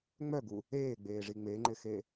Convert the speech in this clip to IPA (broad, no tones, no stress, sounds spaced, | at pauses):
ŋ͡m œ ɡ u | eː ɡ͡b eː ʐ i ŋ͡m e ŋ͡ǃ ɪ x e